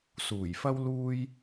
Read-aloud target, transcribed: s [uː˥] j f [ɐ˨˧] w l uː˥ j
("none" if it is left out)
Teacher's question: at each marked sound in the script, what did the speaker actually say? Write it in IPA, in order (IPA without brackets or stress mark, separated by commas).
uː˨˩, ɐ˥